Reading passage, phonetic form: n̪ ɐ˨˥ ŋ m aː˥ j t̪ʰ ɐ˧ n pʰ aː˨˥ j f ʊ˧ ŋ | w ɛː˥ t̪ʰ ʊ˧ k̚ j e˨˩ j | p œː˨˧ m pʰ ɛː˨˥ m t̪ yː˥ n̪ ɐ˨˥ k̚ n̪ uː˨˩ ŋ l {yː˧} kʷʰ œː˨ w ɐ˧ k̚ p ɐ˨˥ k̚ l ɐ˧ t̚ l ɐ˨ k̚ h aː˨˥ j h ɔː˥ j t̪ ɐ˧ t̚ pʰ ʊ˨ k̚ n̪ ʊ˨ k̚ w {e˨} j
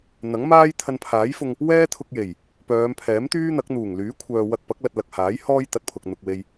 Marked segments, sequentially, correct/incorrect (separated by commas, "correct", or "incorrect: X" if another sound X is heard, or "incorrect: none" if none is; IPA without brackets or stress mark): incorrect: yː˨˥, incorrect: e˧